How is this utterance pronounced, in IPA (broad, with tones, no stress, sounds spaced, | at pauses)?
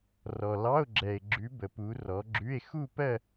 r ɔ˨ l ɑ˧˥˧ o̯ ɡ͡ǁ ɛ˨ e̯ ɡ͡ǁ ʉ˨˦ b ə˨ p u˨˦ r ɔ˨˦ ɡ͡ǁ ʉ˧˥˧ e̯ x u˥˧ p ɜ˥˧